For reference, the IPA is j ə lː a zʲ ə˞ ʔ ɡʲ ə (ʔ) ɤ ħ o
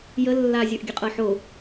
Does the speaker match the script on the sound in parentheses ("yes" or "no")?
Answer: no